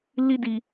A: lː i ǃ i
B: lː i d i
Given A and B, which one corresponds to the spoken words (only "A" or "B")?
B